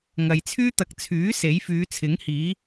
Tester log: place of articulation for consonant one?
velar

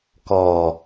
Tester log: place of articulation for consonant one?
velar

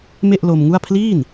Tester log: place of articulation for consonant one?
labial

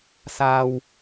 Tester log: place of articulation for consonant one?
alveolar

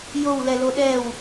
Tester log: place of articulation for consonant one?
palatal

